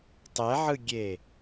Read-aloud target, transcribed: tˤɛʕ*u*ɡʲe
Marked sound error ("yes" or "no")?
yes